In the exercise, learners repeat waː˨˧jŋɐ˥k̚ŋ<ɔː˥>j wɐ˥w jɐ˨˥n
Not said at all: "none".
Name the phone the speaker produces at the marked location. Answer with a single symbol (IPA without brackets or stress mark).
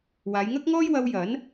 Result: ɔː˥